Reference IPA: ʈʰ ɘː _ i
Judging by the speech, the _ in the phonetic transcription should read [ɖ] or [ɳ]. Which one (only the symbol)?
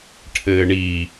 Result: ɳ